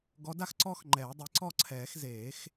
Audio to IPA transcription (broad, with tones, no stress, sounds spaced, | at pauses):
ɡ ɔ˨˦ d a˥˨ x ǀ ɔː˦ x ŋ͡ǃ ɛː˨˩˦ dˤ i˨˦ ǀ ɔ˥˨ ǀʰ ɛː˨˩˦ x z eː˨˩˦ x